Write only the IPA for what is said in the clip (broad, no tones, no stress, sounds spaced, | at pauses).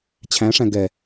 t͡ɕʰ æ̃ ʂ æ̃ ɡ ɛ